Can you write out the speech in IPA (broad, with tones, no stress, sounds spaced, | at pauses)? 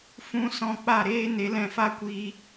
f ũ˦ s ɔ̃˦ k͡p a˦˨ ɾ eː˦ n e˨˦ l ɛ̃˧ f a˦ kʷ iː˧